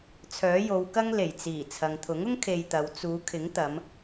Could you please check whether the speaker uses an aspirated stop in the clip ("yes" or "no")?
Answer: yes